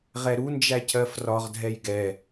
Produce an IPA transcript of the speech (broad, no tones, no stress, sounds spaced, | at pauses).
ʁ ɛ ɾ u n d͡ʒ æ cʰ ɜ f r ɒ ʁ dʱ ɛ j ɡ ɛ